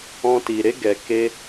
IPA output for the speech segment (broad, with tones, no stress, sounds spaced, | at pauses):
ɔ̃˧ t i˨ ɾ e˧ ɡ ɛ˨ k e˧